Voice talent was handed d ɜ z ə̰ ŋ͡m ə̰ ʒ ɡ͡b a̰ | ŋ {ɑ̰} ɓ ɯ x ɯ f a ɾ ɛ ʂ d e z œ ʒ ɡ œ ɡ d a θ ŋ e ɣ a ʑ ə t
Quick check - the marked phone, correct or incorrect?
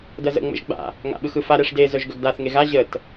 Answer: incorrect: a̰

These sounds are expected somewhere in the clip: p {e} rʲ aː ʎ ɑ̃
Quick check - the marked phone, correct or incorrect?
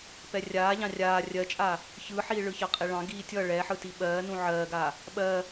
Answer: incorrect: ɛ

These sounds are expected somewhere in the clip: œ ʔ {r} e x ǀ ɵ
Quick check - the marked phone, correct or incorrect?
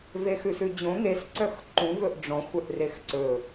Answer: correct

